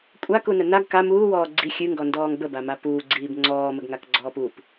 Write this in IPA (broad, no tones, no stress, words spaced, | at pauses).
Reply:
kʷʼakunə naɡ ka muːwɔː ɡ͡ǀi xʲɨŋɡɔndɔːŋ bəbama puːɡ͡ǀiːb ŋ͡ǀɔːməɡŋakɡ͡ǀɔːp up